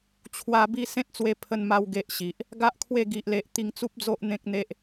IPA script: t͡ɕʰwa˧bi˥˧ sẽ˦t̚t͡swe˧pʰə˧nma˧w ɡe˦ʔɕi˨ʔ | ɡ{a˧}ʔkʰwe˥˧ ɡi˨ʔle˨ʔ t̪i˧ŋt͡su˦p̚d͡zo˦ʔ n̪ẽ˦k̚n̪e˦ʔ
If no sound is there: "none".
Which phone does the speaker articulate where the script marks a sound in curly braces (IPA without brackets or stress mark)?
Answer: a˦